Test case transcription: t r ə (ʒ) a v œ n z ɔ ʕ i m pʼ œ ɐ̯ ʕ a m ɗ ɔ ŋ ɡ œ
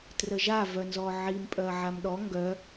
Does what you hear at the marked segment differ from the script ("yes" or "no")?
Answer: no